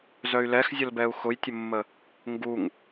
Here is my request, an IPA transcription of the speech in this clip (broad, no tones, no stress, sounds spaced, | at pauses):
z œ y̯ l ɛ x zʲ ə l b ɛ u̯ x ʊ j tʲ ə mː ə | ŋ ɡ u ŋ